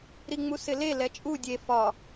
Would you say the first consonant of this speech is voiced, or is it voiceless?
voiced